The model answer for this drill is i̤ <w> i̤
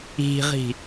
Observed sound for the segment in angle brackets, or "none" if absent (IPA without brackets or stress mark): ʁ